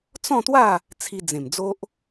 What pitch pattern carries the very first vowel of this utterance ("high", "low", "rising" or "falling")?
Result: falling